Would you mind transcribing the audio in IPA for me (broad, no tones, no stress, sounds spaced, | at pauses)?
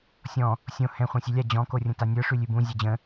sʲ ɔ̃ | sʲ õ h ɛ̃ χʷ ã sʲ ø lʲ a d͡ʑ ɔ̃ k o rʲ ə̃ t a nʲ ə˞ ʂ ʉ lʲ ʉ b ũ zʲ ɛ d͡ʑ ə̃